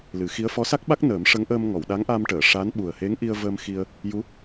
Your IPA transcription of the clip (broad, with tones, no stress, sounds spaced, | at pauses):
l ɨ˨˩˦ x i˧˥ ə̯ f ɔ˧˥ s a˦˥ k̚ ɓ a˦˥ k̚ n əː˨˩˦ m ʂ ə˧˥ ŋ ʔ əː˧ m ŋ ɔ˨˩˨ w ɗ a˧˥ ŋ ʔ a˧ m ʈ əː˨˩˨ ʂ a˧˥ n ɓ u˨˩ ə̯ h e˧˥ ŋ ʔ i˧ ə̯ v əː˧ m x i˧ ə̯ | j u˧˥